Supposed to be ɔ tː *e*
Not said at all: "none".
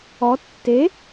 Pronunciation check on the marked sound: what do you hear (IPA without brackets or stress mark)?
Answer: e